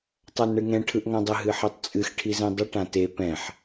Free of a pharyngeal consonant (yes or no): no